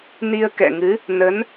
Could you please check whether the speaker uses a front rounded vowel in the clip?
no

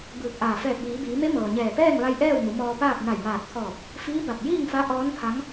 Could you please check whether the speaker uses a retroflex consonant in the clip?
no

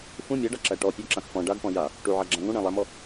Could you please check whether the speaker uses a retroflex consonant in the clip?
yes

